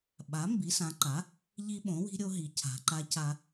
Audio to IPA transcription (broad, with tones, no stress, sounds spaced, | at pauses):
ɓ a˩˥ m b i˩˥ s ã˩˥ ǃ a˩˥ | ʎ i˦ ɓ õ˩˥ w i̤˦ ɾʲ o˦ ɦ i˩˥ cʰ a̤˩˥ ǃ a˦ c a˦